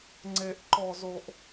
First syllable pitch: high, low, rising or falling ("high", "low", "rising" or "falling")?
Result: high